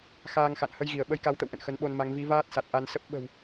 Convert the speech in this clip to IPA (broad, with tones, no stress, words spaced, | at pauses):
xaː˧ŋxa̰˧˨n hə˧jɣi˧˩ə̯ ɓə˨˦jka˨˦wt̪ə̰˧˨w ʔə̰˧˨nxə˨˦nɓo˧nma˨˦ŋ vi˨˦vaː˦˥t̚sa˨˩t̚ ʔa˧nsə˦˥p̚ ɓə̤˨˩w